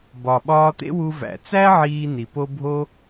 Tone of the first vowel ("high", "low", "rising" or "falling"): low